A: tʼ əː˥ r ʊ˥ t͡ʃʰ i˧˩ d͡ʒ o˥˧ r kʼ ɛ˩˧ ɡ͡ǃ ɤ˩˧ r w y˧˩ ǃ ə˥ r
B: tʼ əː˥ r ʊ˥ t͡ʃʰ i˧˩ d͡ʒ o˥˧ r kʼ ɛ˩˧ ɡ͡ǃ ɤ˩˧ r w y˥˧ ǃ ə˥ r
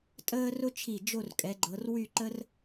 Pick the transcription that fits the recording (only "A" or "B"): B